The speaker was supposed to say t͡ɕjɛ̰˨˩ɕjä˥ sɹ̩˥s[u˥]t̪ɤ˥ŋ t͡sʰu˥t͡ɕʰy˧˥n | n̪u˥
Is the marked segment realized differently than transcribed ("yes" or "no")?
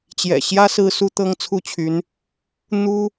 no